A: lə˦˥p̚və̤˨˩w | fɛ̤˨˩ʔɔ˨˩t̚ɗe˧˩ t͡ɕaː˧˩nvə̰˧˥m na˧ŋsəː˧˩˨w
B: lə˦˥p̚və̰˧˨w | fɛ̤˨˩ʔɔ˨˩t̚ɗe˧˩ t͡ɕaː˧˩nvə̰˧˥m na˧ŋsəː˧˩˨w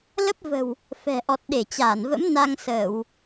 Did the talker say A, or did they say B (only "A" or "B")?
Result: A